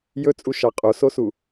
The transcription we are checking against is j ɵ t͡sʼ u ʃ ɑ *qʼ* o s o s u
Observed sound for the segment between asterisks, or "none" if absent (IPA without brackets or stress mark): qʼ